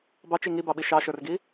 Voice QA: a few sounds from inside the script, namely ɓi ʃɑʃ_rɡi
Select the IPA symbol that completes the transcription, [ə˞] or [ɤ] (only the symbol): ə˞